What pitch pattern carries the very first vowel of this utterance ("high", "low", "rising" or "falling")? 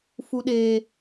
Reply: low